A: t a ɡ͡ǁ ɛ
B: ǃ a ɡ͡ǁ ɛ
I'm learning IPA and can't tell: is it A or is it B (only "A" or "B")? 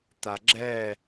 A